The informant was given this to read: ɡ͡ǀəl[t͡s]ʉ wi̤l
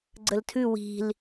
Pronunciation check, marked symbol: incorrect: tʰ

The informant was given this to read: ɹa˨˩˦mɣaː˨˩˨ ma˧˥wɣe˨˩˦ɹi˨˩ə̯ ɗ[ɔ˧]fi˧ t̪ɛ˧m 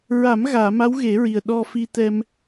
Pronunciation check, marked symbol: correct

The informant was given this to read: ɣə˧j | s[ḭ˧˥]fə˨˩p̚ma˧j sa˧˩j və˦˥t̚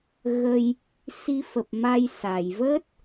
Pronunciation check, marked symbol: incorrect: i˧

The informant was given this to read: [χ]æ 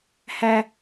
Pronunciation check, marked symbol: incorrect: h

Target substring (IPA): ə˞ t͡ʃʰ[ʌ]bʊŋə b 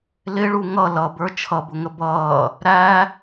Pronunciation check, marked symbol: correct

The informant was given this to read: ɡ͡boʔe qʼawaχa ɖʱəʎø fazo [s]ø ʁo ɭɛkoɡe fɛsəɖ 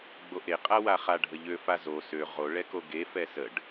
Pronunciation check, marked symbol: correct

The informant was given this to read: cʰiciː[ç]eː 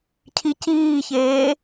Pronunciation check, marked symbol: correct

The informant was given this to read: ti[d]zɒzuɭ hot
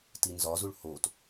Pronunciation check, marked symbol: incorrect: n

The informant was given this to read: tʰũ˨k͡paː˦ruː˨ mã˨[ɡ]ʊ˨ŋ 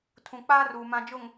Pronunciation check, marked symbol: incorrect: d͡ʒ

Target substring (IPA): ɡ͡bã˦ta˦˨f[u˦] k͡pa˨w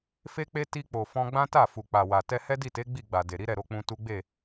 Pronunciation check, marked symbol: incorrect: u˨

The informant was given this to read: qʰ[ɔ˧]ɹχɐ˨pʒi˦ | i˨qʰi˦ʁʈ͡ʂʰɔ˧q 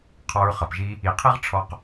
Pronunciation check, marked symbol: correct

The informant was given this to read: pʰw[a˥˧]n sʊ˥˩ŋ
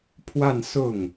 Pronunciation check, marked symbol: correct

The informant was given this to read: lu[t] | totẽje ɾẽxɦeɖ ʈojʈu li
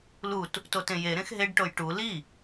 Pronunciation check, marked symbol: correct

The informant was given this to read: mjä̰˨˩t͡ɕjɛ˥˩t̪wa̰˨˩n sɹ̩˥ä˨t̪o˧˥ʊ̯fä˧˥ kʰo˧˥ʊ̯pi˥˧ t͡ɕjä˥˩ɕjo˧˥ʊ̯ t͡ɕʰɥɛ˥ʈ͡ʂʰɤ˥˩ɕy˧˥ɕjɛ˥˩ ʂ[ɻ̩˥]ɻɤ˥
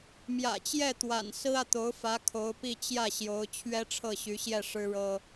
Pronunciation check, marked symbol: correct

